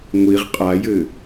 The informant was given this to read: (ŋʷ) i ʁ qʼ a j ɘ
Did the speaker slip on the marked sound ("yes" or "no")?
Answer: no